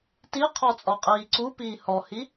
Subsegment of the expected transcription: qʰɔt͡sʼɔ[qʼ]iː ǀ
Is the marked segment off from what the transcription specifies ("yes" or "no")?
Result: no